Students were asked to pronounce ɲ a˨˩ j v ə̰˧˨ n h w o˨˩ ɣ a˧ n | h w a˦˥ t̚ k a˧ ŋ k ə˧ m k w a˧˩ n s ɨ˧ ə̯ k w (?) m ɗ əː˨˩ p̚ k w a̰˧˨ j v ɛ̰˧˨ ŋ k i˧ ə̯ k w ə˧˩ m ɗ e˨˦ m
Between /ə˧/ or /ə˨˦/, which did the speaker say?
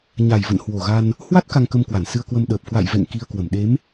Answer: ə˧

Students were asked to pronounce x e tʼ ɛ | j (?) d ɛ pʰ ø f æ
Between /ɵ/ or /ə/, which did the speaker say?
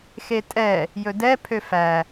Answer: ɵ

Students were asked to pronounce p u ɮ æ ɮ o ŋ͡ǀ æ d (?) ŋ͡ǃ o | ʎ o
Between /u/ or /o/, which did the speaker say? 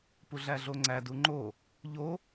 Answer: u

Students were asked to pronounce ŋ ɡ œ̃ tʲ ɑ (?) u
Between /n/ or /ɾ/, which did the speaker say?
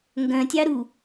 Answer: ɾ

